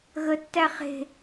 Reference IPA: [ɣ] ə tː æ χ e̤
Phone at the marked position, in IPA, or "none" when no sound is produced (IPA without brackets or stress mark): ɣ